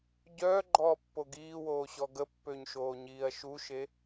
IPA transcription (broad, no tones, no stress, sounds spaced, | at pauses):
ɟ œː ɡ͡ǃ ɔː pː o ɡ iː w oː ɕ ɔ ɡ ə pː ø ɲ ʃ oː ɲ iː ɐ̯ ʃ u ʃ e